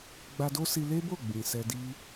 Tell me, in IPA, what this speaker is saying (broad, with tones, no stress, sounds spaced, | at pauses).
ɡ͡b a˧ d o˦ s i˧ l e˦ b o˦˨ ɡ͡b ĩ˨ s ɛ˧ d i˦